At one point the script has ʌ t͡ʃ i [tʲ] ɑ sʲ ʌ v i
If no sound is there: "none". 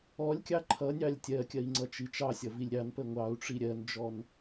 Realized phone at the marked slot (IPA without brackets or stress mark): t͡ʃ